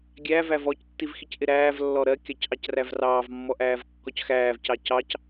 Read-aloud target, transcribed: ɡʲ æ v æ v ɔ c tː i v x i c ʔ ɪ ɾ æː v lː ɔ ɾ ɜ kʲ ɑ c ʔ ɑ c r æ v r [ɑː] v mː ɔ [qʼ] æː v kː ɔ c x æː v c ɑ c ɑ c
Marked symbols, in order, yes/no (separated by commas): yes, no